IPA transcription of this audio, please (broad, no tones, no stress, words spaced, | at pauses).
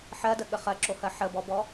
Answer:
ħɜdəɠə χɜǁohɜ ħəbɔbɔ